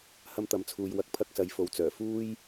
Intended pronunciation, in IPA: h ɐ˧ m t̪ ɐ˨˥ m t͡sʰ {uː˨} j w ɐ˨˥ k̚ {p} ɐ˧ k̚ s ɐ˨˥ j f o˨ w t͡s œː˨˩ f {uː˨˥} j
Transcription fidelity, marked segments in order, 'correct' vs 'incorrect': correct, incorrect, incorrect

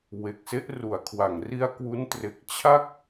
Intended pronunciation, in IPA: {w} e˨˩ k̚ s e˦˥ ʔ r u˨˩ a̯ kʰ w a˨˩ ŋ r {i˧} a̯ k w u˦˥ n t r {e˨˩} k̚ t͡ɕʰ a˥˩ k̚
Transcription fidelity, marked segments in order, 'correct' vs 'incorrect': correct, correct, correct

